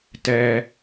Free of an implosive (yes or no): yes